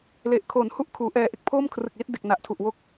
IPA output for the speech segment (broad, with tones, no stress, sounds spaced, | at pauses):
l e˨˩ ʔ kʰ o˨˩ n h u˥˩ ʔ kʰ uː˩˦ ʔ ɛː˧ ʔ e˦˥ k̚ pʰ o˥˩ m kʰ r ɯ˨˩ k̚ l i˦˥ t̚ d e˨˩ k̚ n a˨˩ ʔ tʰ u˨˩ ʔ w o˦˥ k̚